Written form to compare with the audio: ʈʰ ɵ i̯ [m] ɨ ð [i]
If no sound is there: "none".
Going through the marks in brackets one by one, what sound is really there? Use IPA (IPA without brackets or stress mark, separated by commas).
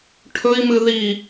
m, i